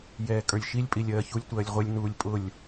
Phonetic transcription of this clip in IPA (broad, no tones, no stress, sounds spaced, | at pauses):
j ɛː kʼ ə˞ lʲ ʃ i lʲ pʼ i lʲ ɜː ç u lʲ tʷ ɜː lʲ ʁʷ e lʲ n uː lʲ pʼ ʊ lʲ